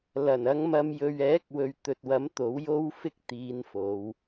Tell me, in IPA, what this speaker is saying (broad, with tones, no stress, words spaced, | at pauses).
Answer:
lɐ˨˩nɐ˨˧ŋmɐ˨m jɵ˨ɥɛː˨˥k̚wɵ˨ɥ t̪ɵ˨t̚wɐ˨˥m t̪o˨˥wjo˥wfɪ˥k̚ t̪iː˨˧nfo˨˧w